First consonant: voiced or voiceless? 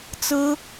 voiceless